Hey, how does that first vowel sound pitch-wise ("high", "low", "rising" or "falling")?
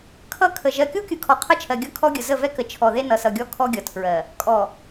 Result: falling